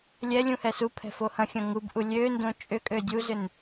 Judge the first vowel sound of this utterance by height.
mid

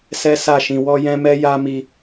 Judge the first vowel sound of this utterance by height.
mid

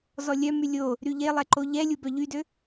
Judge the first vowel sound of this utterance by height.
mid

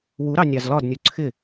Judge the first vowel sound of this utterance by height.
high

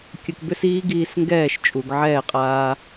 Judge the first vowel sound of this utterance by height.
mid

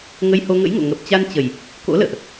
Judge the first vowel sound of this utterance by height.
mid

